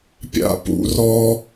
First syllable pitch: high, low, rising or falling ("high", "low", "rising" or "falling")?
high